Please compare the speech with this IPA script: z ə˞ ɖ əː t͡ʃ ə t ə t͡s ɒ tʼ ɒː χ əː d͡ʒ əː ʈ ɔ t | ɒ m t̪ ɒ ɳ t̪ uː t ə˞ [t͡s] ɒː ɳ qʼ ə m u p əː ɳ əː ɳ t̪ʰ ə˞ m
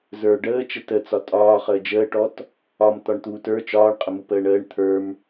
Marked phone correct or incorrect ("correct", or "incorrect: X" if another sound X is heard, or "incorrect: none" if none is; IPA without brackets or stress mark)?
incorrect: t͡ʃ